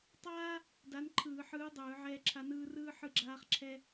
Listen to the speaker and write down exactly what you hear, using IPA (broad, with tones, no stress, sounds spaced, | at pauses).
tˤ aː˥ | d a˧˥ n ǃʰ ɯː˧˩˧ ħ ɯː˧˥ dˤ ɯː˧˩˧ ʕ ɛː˥ ǁʰ a˥ n ɯː˥ r ɯː˥ ħ ɯ˥ ɡ͡ǁ aː˥ χ ǁʰ ɛ˥